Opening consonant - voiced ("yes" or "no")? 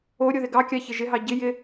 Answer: yes